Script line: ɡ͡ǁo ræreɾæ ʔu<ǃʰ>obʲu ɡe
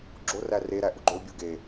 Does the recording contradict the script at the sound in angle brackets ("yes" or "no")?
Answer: yes